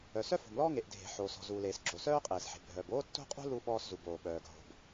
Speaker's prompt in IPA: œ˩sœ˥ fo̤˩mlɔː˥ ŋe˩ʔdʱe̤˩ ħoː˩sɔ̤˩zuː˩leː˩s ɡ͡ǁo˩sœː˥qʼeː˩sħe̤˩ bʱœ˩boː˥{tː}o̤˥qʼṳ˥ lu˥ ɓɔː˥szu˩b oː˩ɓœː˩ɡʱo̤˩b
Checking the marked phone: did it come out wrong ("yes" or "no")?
no